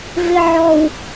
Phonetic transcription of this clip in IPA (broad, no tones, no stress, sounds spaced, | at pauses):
v ɪ ʕ ɔ w